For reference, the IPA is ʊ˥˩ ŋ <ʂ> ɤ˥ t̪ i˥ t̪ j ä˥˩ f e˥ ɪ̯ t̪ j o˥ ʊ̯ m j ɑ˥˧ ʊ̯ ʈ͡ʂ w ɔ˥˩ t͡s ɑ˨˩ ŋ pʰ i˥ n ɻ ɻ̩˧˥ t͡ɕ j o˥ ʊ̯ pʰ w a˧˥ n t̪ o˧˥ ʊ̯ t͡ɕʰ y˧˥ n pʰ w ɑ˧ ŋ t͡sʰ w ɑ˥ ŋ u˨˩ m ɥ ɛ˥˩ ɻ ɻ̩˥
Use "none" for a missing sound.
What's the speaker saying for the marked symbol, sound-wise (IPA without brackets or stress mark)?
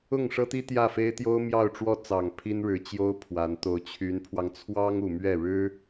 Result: ʂ